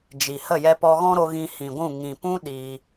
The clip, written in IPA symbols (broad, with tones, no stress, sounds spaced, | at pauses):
d͡ʒ i˨ h ə˦˨ j ɛ˧ p ɔ˧ ɣ ɔ̃˦ ɾ o˧ ɣ ĩ˧ h ĩ˨ ɡʷ ũ˦˨ ŋ ĩ˨ p ũ˦ ɗ iː˧